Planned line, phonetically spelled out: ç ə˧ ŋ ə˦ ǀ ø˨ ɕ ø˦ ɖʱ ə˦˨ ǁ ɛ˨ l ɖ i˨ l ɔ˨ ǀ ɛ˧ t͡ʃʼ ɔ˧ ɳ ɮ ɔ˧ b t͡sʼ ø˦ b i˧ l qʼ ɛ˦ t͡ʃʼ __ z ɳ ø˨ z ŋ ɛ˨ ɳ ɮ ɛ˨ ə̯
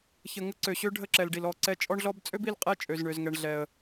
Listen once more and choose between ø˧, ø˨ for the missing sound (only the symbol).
ø˨